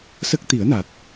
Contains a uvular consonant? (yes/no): no